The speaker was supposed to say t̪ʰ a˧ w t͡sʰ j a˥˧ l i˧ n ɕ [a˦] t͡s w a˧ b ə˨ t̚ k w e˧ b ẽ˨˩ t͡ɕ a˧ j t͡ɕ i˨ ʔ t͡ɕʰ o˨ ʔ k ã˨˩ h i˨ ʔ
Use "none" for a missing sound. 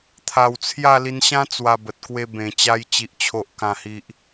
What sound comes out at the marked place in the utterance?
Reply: ã˦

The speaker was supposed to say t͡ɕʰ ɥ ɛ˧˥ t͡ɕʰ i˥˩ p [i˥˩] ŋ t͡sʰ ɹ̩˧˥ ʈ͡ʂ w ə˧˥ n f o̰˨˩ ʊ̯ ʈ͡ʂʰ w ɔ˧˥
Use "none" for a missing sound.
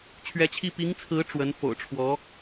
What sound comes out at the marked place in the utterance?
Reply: i˧˥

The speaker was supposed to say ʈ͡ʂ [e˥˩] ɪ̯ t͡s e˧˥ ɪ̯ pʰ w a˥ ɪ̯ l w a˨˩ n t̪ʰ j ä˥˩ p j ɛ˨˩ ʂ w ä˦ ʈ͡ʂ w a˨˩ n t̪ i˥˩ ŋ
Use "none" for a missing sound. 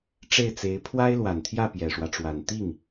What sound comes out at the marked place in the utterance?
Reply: e˥˩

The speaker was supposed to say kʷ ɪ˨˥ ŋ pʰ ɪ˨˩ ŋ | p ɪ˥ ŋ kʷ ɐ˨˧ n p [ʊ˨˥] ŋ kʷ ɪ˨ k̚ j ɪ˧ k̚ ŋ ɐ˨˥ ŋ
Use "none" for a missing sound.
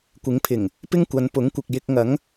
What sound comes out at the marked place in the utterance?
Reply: ʊ˨˥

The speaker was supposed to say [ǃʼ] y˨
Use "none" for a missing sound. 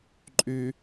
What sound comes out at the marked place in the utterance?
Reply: ǃʼ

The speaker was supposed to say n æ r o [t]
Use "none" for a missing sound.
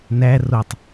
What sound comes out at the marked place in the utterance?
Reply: tˤ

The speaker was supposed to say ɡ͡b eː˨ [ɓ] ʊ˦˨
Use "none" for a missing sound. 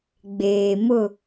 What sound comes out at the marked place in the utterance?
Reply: m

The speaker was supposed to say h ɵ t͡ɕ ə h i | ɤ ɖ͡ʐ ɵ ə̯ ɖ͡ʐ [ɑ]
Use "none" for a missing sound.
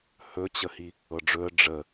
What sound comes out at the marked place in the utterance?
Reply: ə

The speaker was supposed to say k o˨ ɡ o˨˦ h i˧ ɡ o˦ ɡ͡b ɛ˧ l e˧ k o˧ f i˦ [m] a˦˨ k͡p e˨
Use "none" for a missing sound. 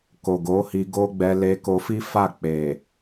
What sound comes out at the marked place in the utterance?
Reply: f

